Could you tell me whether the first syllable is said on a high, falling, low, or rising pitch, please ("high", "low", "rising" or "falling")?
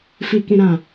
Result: low